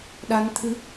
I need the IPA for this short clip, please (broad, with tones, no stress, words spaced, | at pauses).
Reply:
ɗa˧nt̪ʰɨ˧˥